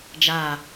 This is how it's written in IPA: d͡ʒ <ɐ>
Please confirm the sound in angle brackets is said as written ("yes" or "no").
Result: no